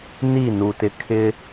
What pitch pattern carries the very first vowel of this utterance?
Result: falling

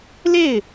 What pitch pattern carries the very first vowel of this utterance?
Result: falling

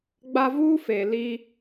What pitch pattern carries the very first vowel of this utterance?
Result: high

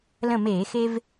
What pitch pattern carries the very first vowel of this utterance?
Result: falling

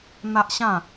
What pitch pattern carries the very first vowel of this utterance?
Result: high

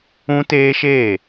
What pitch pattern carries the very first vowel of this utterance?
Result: high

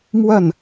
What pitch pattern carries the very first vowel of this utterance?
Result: falling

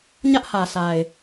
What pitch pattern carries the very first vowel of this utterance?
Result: high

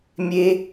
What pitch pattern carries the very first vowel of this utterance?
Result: high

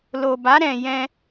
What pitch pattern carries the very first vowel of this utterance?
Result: low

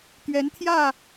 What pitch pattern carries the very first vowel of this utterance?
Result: rising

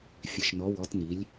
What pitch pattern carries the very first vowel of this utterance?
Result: low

